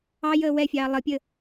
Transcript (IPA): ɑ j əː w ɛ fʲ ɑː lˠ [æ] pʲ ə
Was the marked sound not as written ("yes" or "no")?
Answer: yes